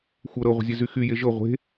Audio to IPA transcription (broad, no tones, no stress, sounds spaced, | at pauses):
xʷ ɤ ɾ ɤ ʁʷ ə̤ zʲ e z y x y j e ʒ ɤ ʁʷ e̤